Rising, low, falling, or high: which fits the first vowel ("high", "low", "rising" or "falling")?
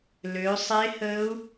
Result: rising